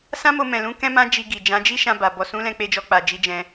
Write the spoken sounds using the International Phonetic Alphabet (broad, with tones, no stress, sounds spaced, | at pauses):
s ã˦ m o˧ m ɛ̃˨ l ũ˨˦ k ɛ̃˦ m ã˦ d͡ʒ i˧ ɡ i˨ d͡ʒ ã˨˦ d͡ʒ i˦ ʃ ã˧ b a˨ b ɔ˨ s ũ˨˦ l ɛ̃˧ k͡p e˧ d͡ʒ ɔ˧ k͡p a˨ d͡ʒ i˨˦ d͡ʒ ɛ̃˧